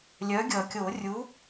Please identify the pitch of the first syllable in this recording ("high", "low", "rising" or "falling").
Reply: rising